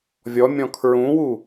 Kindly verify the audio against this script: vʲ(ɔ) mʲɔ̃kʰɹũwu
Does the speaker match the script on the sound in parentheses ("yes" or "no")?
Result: yes